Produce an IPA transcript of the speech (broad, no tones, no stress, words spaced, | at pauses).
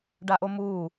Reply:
ɖaʔomuː